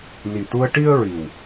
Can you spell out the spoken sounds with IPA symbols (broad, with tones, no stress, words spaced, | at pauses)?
ni˨˩t̪u˧ə̯ ʈi˧ə̯ ɹi˨˩w